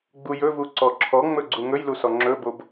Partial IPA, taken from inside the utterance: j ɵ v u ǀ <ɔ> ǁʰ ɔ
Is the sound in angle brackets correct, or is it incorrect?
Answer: correct